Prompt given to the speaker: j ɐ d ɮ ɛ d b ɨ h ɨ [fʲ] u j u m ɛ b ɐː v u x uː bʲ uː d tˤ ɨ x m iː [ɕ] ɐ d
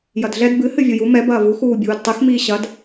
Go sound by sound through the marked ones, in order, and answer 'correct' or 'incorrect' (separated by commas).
incorrect, correct